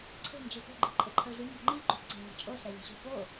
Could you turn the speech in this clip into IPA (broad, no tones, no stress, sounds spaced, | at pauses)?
ǀʰ e̤ n d͡ʒ i p o̤ ɡ͡ǃ i ǃʼ e ǃʰ ʌ ɭ z y ɲ ʌ ŋ͡ǃ i ɡ͡ǃ o p ǀ ɛ̤ ɭ ɲ e̤ t͡ʃʼ o ɬ ɛ lʲ e̤ ɕ o̤ p o